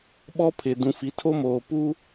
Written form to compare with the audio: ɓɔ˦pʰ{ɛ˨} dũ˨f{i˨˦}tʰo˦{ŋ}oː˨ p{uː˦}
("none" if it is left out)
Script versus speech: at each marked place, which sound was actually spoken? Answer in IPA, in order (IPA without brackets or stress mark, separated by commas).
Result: ɪ˨, i˨˦, m, u˦